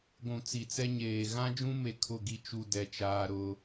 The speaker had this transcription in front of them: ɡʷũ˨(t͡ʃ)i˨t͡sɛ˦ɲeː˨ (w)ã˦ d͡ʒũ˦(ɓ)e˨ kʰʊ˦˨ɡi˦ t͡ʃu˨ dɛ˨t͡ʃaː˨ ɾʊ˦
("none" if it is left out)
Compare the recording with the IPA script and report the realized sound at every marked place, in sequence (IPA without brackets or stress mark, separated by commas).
t͡s, ɣ, m